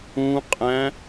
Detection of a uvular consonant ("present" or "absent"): present